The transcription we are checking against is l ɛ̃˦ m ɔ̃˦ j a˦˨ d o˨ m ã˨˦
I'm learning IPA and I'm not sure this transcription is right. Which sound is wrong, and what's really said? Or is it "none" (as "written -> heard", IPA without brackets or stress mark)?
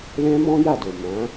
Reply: none